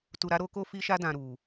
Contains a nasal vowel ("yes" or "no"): yes